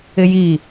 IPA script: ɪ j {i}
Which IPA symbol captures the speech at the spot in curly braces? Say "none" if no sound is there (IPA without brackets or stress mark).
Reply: i